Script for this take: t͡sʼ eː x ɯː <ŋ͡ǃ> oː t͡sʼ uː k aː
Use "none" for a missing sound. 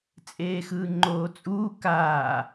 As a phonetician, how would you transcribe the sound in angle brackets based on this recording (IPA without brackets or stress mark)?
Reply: ŋ͡ǃ